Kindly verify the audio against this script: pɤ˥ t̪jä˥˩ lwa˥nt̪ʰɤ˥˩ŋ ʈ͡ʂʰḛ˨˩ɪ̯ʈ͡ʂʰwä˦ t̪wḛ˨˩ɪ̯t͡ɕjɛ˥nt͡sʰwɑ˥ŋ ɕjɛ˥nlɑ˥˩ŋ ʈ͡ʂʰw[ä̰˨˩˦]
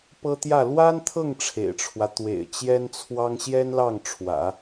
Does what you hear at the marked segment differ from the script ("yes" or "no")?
no